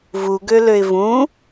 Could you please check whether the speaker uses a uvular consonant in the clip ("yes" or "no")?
no